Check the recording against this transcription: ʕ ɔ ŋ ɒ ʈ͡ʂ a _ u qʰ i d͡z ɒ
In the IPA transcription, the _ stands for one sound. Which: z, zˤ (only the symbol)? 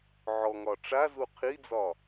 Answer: z